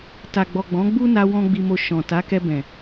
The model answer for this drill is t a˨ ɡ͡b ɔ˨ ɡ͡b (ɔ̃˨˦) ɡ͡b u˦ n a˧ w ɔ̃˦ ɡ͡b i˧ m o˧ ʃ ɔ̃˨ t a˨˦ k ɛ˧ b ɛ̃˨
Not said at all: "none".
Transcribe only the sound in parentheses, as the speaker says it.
ɔ̃˨˦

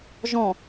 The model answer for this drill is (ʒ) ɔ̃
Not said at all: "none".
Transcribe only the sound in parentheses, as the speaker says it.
ʒ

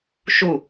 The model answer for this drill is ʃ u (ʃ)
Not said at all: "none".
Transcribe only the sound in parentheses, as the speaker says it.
none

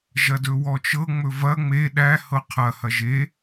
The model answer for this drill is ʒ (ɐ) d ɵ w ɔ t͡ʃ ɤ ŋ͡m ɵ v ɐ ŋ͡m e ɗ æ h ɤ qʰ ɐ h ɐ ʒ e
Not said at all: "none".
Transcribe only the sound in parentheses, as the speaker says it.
ɐ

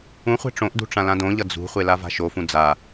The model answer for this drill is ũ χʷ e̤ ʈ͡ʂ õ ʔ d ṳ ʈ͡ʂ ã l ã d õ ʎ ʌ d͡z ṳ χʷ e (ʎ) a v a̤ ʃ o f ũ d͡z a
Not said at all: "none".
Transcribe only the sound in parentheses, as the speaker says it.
l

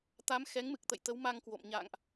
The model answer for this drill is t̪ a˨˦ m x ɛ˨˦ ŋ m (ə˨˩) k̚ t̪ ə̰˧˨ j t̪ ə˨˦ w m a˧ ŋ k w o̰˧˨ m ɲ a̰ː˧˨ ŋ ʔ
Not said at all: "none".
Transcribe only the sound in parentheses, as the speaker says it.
ɨ˨˩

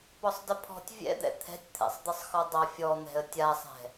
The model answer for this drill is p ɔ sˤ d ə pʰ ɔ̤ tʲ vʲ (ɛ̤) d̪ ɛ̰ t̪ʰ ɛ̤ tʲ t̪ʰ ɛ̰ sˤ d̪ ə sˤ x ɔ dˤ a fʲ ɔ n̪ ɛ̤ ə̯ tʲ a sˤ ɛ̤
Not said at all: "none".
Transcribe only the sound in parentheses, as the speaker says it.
ɛ̰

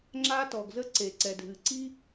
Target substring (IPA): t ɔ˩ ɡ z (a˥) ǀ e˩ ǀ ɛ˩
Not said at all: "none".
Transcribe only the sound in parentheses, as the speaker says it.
ə˥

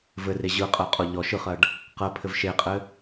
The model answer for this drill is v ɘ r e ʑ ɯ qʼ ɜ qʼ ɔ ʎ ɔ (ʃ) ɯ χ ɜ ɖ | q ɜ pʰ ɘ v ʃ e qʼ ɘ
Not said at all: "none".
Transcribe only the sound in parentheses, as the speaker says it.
ʃ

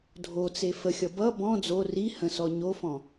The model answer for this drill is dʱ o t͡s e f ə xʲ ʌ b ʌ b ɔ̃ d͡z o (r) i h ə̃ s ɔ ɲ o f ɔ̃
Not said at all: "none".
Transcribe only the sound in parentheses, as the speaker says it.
r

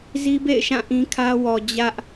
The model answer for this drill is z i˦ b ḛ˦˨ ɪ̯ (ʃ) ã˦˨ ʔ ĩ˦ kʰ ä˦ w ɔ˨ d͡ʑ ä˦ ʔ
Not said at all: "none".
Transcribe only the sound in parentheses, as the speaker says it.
ʃ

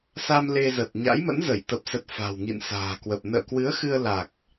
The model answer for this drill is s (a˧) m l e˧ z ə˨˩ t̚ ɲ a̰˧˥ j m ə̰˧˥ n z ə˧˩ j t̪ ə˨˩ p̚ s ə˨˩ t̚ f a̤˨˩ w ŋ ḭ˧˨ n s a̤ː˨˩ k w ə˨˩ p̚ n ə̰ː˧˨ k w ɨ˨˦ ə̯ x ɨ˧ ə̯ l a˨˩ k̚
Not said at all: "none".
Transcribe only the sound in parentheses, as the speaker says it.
a˧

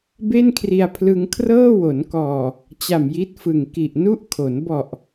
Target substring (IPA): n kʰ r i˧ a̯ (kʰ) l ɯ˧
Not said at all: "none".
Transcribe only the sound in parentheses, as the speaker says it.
pʰ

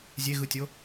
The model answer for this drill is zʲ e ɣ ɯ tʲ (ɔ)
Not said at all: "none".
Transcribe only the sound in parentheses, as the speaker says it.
o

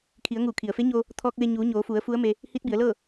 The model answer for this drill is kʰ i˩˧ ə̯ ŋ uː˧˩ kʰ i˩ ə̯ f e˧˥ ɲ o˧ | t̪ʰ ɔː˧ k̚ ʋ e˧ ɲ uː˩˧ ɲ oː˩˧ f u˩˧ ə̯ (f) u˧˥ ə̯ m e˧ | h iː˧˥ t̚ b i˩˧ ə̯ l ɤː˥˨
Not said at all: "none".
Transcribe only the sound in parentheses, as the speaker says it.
f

